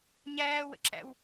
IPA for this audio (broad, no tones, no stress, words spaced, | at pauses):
ɲæːwə̰ǁæ̰w